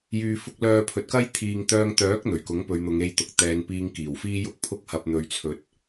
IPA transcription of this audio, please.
j yː˧ f ʊ˥ k̚ l œː˧ pʰ ɵ˨ t̚ k ɐ˥ j t̪ʰ iː˨ ŋ t̪ œː˧ ŋ t̪ œː˨˥ k̚ n̪ ɵ˨˩ ɥ k ʊ˨˥ ŋ p ɵ˨˧ ɥ n̪ ʊ˨˧ ŋ e˧ j t̪ ʊ˨ k̚ t̪ ɛː˨˧ n p iː˧ ŋ k iː˨˩ w f iː˥ j ʊ˥ k̚ pʰ ʊ˥ k̚ h ɐ˧ p̚ n̪ ɵ˧ ɥ t͡sʰ ɵ˧ t̚

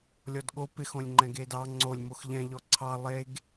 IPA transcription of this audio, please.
lʲ ɔ d ɠ o p ɪ x õ lʲ ŋ͡ǃ ɛ̃ ɡ e d ɑ ŋ͡ǀ o lʲ m o x ʎ ɛ̃ ʎ ɔ ǀʰ ɑ lˠ e ɡ

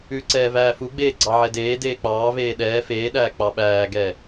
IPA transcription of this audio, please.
ʉ ǀ ɛː v æː f u ɡ͡b eː ɡ͡ǀ ɑ ʕ ɛ d eː d eː k͡p ɑː v eː ɗ ɛː f eː ɗ æː k͡p ɑ ɓ æː ɡ ɛ

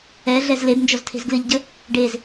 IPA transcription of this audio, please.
ɛ ɮ ɛ z l e b n d͡ʒ ɔ z tʰ e̤ z ɡ l ɨ ʎ ɟ ə | ɖ e z

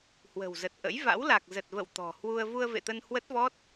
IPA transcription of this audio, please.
h w ə̤˨˩ w z ə˨˩ t̚ ʔ ə̰˧˥ j v a̰˧˥ w l a˨˩ k̚ z ə˨˩ t̚ v ə̰˧˨ w t̪ ɔ̤˨˩ h w u˧ ə̯ v u˧ ə̯ v ḛ˧˨ t̪ ə˧ n h w ə˦˥ t̚ v ɔ˦˥ t̚

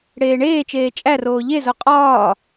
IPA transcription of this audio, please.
ɽ eː ɳ eː t͡ʃ eː t͡ʃʼ æ r oː ʎ e z o qʼ ɒː

